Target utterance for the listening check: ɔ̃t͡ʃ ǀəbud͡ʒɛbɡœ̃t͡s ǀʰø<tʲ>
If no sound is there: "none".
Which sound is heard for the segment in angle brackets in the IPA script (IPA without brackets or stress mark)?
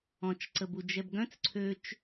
t͡ʃ